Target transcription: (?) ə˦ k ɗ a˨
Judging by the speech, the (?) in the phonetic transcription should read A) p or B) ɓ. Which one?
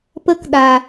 A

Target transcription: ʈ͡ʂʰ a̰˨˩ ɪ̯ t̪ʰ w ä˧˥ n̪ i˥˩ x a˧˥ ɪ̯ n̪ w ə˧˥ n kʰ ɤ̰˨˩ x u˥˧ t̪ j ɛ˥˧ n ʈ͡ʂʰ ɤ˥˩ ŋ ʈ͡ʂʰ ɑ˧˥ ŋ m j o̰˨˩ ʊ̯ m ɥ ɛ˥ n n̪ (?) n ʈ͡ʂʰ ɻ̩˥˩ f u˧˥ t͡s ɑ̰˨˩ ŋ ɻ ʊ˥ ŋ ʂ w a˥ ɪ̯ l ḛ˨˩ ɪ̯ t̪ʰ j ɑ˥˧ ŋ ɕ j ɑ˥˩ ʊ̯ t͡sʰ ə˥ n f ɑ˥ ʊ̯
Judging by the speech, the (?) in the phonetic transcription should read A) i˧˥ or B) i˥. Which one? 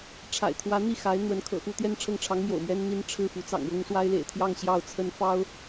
B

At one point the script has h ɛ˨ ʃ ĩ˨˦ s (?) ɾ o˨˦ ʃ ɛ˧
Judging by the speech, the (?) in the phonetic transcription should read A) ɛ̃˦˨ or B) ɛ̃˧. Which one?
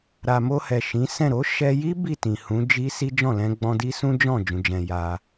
A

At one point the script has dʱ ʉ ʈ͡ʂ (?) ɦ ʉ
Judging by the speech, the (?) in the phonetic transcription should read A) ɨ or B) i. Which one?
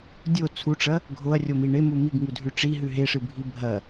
B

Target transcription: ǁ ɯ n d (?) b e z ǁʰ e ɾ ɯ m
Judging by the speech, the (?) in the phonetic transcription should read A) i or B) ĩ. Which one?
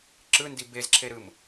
A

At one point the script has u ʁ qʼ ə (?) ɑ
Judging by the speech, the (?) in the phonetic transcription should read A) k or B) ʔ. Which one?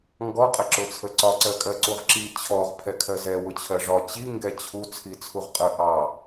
B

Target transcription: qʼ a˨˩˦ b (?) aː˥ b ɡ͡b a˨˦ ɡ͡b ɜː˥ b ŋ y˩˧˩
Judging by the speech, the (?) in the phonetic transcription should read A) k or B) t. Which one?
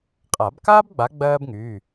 A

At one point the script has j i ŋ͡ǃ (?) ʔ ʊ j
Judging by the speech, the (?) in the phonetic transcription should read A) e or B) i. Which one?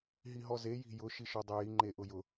A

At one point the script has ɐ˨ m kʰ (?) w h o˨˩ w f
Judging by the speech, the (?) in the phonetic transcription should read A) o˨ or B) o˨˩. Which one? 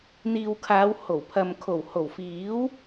B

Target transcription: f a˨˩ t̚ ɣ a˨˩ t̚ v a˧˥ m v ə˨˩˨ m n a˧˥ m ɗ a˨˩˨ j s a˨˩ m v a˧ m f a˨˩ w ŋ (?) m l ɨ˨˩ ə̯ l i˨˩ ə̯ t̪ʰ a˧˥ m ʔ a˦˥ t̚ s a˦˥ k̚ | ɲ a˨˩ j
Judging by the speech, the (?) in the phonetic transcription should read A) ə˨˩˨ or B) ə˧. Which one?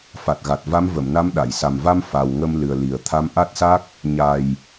B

